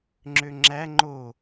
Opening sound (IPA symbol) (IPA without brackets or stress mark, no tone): ŋ͡ǁ